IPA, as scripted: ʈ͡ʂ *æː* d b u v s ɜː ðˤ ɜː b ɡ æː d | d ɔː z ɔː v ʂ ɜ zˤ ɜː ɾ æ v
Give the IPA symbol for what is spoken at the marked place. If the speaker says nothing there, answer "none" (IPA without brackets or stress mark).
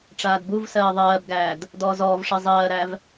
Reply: aː